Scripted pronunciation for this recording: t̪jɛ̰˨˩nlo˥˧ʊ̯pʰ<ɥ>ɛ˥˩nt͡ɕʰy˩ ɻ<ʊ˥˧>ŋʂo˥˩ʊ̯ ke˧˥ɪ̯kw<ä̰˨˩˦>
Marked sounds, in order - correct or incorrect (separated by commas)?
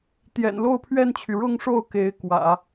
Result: correct, correct, correct